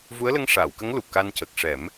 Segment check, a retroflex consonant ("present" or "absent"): present